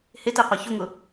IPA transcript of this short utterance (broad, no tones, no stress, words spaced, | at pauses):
heteqʷa çʊŋʊ